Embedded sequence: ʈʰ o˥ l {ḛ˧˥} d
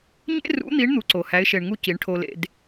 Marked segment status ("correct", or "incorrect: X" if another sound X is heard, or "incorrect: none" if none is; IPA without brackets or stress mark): correct